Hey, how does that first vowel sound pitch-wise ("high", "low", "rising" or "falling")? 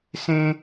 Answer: high